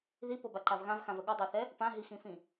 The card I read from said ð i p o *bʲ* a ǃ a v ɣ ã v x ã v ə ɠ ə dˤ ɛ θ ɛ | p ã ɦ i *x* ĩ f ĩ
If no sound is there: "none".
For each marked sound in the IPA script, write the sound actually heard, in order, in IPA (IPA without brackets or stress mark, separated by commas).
b, x